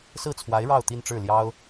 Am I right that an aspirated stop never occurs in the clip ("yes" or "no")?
no